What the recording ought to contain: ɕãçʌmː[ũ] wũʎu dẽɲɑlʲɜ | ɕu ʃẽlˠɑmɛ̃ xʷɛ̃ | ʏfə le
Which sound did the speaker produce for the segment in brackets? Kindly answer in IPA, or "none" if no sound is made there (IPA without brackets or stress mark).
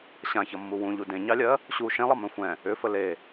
u